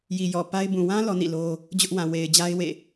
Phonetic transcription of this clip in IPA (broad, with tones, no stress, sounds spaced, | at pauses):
j i˨ j ɔ˨ p a˦ ɪ̯ b ũ˨ w ã˦ l ɔ˦ n ḭ˦˨ l o˦ | d͡ʑ ʊ˦ ʔ w ã˨ w e˨ ɪ̯ d͡ʑ a˦ ɪ̯ w ḛ˦˨